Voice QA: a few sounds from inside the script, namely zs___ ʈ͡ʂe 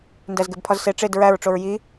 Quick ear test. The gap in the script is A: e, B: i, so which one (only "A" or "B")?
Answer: A